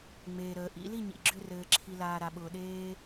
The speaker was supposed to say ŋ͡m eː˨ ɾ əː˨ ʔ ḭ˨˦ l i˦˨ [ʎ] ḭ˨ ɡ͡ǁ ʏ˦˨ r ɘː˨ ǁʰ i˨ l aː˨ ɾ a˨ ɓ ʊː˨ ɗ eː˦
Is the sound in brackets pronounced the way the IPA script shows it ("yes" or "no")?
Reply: no